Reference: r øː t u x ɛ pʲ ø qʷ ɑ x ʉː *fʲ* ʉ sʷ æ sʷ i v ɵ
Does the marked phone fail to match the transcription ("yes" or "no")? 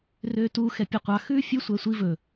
no